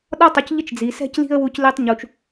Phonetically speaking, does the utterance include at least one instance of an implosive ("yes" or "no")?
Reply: yes